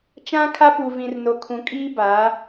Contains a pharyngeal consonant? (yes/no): no